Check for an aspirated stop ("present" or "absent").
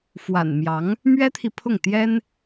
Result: present